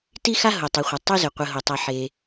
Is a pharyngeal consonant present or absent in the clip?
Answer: present